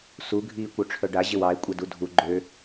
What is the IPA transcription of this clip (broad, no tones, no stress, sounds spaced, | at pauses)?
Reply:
s u ɡʱ iː kʷ œ ʈ͡ʂʰ œ ɖ a ʑ ɪ w ɑ e̯ kʷʼ ɛ d u dʱ u ɡ͡ǃ ø